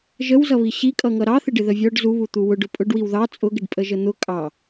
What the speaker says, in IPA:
ʒəwzʌβi ɕikʼʌŋʌ ɾɑθɪɖɪ ðəvʲɔɖ zuβu t̪uwʊɖʊ pʼʊɖwiw ðɑ t͡sʼʊɡɪɖ pʼəʒən̪ʊ kʼɑ

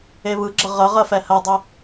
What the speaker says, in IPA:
eβɯɡ͡ǁə ʁə ʁɜfɛhɜdˤɛ

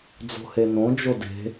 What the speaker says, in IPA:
d͡zo̤henõ d͡ʒode̤

